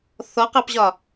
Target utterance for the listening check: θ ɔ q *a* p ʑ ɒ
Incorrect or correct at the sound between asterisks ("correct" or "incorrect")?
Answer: incorrect